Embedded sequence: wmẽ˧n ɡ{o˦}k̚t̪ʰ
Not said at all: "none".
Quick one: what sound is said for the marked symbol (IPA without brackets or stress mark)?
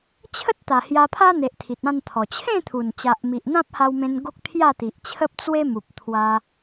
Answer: o˦